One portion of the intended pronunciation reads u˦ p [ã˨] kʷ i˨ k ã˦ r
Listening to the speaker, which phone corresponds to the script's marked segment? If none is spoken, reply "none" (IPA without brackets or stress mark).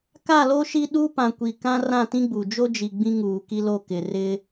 ã˨